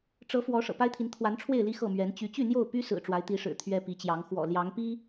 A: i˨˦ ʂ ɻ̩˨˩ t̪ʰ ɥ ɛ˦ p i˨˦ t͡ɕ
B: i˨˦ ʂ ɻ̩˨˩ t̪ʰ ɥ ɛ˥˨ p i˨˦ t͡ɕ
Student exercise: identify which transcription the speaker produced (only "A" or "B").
A